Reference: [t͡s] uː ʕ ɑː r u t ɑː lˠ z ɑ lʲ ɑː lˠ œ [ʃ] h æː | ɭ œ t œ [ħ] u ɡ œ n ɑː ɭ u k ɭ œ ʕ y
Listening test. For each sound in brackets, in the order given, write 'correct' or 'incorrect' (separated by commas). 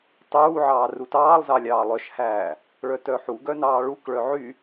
incorrect, correct, correct